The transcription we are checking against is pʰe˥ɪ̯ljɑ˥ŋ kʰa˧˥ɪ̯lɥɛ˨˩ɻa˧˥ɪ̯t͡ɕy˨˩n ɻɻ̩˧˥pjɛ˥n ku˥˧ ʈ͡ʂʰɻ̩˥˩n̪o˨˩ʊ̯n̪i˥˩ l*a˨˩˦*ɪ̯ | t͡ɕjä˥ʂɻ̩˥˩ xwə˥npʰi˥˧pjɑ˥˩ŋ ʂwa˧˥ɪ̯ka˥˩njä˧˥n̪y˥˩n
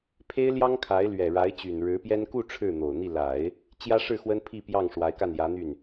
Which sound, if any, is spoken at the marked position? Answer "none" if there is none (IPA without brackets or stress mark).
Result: a˨˩˦